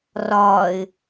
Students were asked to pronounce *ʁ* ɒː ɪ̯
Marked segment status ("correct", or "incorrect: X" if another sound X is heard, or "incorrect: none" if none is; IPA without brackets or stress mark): incorrect: r